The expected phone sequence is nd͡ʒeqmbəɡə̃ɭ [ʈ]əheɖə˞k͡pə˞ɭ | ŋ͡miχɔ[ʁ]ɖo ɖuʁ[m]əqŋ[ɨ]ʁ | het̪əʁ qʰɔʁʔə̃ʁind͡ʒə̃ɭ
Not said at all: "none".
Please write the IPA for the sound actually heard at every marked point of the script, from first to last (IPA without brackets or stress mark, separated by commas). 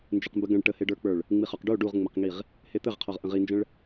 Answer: ʈ, q, ŋ͡m, i